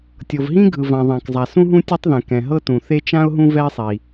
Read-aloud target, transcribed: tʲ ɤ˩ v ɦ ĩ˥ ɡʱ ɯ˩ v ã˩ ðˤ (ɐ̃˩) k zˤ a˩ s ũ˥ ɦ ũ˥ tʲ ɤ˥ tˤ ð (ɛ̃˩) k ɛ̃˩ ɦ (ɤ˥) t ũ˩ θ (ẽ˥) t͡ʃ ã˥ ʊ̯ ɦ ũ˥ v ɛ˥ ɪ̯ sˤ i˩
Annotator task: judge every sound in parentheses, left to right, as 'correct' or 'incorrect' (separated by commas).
incorrect, correct, correct, incorrect